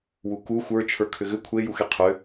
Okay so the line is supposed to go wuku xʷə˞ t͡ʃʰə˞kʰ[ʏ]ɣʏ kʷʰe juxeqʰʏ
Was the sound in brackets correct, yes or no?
yes